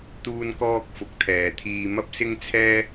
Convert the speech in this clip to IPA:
t̪ uː˧ n k ɔː˧ k̚ f ʊ˨˥ k̚ t̪ʰ ɛː˨˧ t̪ʰ iː˧ m ɐ˥ p̚ s ɪ˥ ŋ t͡sʰ ɛː˥

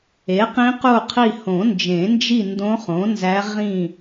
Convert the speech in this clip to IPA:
e˩˥ q ĩ˧˥ q u˦˨ qʰ i˦˨ h õ˨˩˦ n d͡ʒ ẽ˨˩˦ n d͡ʒ i˦˨ n d õ˧˥ χ õ˩˥ n z æ˧˥ ʁ ĩ˦˨

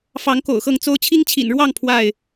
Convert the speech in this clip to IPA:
f ɑ˨˦ ŋ k o̰˨˩ ʊ̯ x ɤ˥˨ ŋ t͡s o˦ ʊ̯ t͡ɕʰ i˦ ŋ t͡ɕʰ ḭ˨˩ n ɻ w ɑ˥˨ ŋ pʰ w a˥˨ ɪ̯

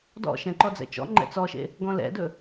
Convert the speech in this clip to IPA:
d ɔ̰ ʃ ɛ̃ ǃ ɔ d͡z ɛ̰ t͡ʃ ɔ̰ ŋ͡ǃ ɛ̰ t͡s ɔ ʃ ḛ | ɡ ɔ̃ l ɛ̰ d ɵ

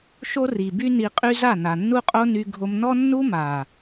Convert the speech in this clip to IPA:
ʃ o˦ r i˨ b y˦ n i˧ qʼ y˦ z a˦˨ n a˨ nː u˦ qʼ o˦ n y˧ ɡʱ o˧ m n ɔ˦ nː u˦ m a˨

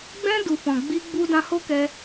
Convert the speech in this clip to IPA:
ɡ͡b ɛ̃˧ d u˨ f ɔ̃˨ ɡ͡b i˧ ɡ͡b u˧ d ã˧ h o˦ k ɛ˧

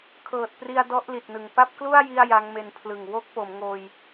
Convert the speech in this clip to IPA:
kʰ ɤː˨˩ t̚ p r i˧ a̯ d ɔ˦˥ ʔ l i˨˩ t̚ n ɯ˨˩ ŋ p a˥˩ p̚ k l u˥˩ a̯ j i˥˩ a̯ j a˦˥ ŋ m e˧ n pʰ l ɯ˨˩ ŋ w o˥˩ k̚ p o˩˦ m ŋ oː˧ j

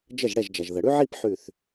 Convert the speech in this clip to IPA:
d͡ʒ ə˥˩ ʒ ɽ ɛ˥˩ ʒ d͡ʒ ɐ˩ ʒ ð ə˩ ɽ ʉ˥ ʕ i˥˧ p ħ ʉ˧˩ θ

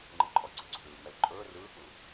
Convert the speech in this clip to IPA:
ŋ͡ǃ ɯ ǃʼ ɔ ɡ͡ǀ ɵ ɡ͡ǀ o ɗ ɯː ŋ͡m ɛ l ǃʼ ɵː r ɯː k͡p ɯ

